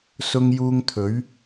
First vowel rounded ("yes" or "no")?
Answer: yes